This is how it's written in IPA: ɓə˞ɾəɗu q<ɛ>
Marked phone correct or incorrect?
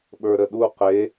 incorrect